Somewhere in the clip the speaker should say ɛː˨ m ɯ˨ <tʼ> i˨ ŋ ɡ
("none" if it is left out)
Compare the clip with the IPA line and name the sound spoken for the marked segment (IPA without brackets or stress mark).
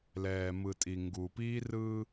tʼ